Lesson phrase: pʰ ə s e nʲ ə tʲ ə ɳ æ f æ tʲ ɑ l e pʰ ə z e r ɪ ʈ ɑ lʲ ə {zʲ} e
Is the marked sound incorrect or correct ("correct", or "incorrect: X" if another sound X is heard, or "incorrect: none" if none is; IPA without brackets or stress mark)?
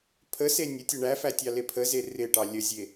correct